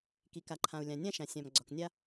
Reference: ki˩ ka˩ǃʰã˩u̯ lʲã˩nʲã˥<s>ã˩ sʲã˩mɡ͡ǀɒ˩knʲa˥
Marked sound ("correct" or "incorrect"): incorrect